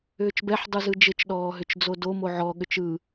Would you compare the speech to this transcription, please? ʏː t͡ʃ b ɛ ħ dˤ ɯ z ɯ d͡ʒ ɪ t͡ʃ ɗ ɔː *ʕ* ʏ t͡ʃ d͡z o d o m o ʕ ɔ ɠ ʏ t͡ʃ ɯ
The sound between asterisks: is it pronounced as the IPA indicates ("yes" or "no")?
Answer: no